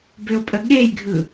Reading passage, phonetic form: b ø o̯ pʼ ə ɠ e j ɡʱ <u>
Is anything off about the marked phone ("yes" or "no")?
yes